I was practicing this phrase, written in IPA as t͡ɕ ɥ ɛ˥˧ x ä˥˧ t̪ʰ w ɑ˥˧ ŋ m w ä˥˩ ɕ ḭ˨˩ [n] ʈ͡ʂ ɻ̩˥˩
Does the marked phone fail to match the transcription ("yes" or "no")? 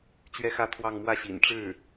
no